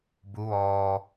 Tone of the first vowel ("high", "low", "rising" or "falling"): rising